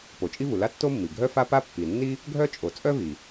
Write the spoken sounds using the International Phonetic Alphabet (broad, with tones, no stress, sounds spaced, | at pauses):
p o˩ t͡ʃʼ i˥ v u˩ l a˥ tː o˥ mː i˩ ɡʱ œ˥ f a˥ p a˥ pː i˩ nː i˥ | ɡʱ œ˥ t͡ʃʼ o˩ t͡sʼ œ˥ v i˩